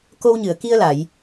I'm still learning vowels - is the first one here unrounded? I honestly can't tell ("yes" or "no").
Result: no